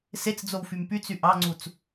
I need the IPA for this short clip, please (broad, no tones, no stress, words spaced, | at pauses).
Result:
set͡sd͡zow fympyt͡sy ʔɑŋ͡ǀut͡s